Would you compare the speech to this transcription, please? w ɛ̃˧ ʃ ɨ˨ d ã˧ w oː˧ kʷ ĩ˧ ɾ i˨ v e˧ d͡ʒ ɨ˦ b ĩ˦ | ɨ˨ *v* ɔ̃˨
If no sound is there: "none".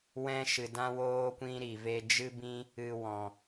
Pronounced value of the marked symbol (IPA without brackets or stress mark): w